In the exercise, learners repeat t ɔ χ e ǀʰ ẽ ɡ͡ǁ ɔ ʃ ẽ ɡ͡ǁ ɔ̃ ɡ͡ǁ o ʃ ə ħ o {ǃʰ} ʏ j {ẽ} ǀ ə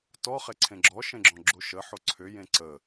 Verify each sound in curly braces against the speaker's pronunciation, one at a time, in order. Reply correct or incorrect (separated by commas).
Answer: incorrect, correct